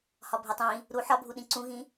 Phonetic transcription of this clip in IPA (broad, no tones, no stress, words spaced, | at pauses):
hɒbʱetˤĩ | ɾu ħɒbʱuɗĩ ǀũɣĩ